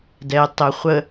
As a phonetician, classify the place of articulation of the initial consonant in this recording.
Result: alveolar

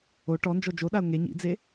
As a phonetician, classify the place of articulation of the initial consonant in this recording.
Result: retroflex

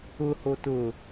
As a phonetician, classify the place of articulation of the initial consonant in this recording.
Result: glottal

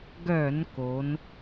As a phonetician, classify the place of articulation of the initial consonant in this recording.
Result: velar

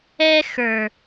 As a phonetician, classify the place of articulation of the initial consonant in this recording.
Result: velar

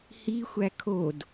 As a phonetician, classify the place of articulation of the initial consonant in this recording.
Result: glottal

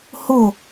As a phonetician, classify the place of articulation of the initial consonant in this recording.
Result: glottal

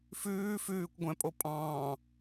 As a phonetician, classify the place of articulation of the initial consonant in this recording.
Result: labial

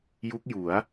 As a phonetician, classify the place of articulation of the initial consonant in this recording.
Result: palatal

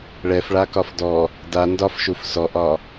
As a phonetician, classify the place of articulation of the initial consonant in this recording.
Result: retroflex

